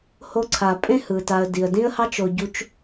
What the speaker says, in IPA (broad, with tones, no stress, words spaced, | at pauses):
ho˦ǀʰa˨ pʼẽ˥hɯ˩ta˨ə̯ di˩ə̯dĩ˦ə̯hɑ˦t͡ʃo˨ ɟu˦t͡ʃ